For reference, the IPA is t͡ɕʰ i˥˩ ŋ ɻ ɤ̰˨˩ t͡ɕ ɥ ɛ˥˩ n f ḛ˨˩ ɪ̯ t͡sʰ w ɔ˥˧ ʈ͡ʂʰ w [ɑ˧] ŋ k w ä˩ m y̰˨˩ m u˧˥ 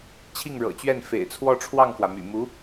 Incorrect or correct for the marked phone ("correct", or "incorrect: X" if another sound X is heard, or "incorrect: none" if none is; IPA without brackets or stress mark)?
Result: incorrect: ɑ˥˩